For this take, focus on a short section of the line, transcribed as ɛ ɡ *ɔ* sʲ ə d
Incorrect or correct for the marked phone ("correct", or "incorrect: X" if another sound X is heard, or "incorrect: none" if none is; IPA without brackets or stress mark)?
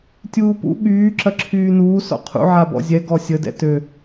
correct